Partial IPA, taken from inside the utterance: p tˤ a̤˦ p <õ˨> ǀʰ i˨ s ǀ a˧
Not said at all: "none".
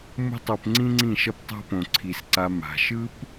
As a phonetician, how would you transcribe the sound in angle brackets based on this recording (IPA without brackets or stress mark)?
õ˨